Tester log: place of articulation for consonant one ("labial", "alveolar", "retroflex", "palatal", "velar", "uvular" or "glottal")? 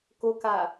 velar